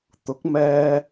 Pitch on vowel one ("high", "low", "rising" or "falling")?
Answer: rising